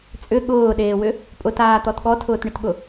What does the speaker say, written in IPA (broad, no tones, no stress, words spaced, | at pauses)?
t͡sʼʏ ɠʊːɗeːwʏ | pʼʊtaːt̪ɔt ɠɔtʰʊːtɳʏtɠʊ